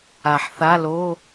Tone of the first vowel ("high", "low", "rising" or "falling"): low